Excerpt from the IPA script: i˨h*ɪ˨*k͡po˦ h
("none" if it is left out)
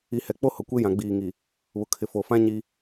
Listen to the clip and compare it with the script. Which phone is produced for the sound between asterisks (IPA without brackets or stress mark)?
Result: ɛ˨